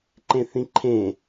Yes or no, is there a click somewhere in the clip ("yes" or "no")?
yes